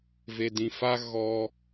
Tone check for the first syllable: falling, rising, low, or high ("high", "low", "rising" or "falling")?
low